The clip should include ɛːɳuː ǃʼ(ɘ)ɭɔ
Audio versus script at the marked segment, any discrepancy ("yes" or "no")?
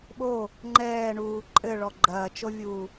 no